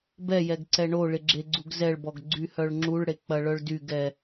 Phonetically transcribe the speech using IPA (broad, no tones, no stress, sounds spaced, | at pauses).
b ɛ j ɛ ɡ ǀ ɛ ɳ o ɭ ɪ ɡ͡ǁ e ɡ͡ǀ u ɡ z ɛ ɭ b ɔ ɡ ɡ͡ǀ y h œ ɭ ŋ͡ǁ u ɭ ɽ e k͡p ɐ ɭ œ ɭ d y ɡ ɛ